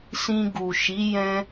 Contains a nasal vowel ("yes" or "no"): yes